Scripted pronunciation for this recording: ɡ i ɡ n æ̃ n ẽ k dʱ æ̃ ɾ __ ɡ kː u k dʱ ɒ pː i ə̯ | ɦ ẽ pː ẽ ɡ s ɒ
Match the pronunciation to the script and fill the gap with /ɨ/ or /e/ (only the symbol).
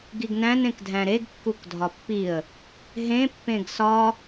e